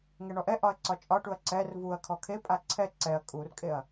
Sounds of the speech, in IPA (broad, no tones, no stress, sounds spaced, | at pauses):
ŋ ɛ ɳ ɔ ʔ ɛ ʔ ɒ ɐ̯ ǀ ɒ t͡ʃʼ ɒ ʈ u ɐ̯ ǀ ɛ r v u ɐ̯ kʰ ɔ kʰ e pʼ a ǀʰ ɛ ǀ ɛ ɐ̯ kʼ u r kʼ e ɐ̯